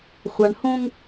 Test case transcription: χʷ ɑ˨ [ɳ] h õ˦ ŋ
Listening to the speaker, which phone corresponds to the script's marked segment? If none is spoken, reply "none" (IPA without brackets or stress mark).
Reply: ɳ